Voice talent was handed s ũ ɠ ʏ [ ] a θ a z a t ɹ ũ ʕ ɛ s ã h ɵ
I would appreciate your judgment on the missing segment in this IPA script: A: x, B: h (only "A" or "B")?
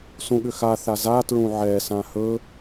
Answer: A